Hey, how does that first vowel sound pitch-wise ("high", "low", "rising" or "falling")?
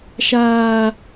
high